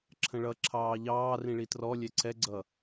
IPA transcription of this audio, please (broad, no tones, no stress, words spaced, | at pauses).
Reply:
ǁʰə̃ɭʌ ǁʰɑːʎɑː rĩɭitrɔ lʲɛǀʰɛɡ͡ǀʌ